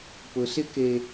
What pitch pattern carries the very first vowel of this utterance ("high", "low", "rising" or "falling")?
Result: low